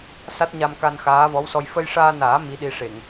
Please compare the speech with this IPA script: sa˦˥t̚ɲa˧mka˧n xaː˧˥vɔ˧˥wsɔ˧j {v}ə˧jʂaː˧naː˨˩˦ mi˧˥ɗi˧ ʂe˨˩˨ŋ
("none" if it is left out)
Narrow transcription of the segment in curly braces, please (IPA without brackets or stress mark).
f